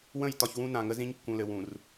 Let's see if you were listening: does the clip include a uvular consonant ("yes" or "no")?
no